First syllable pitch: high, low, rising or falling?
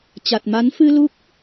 low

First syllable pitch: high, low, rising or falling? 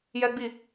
high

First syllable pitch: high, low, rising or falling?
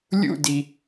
falling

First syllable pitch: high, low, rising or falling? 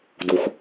low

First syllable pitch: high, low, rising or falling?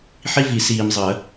high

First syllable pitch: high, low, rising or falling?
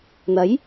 rising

